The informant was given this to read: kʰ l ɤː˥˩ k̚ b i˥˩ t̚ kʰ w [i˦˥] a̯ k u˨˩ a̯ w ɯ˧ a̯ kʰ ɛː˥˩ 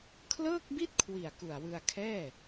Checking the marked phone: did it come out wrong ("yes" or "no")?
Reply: yes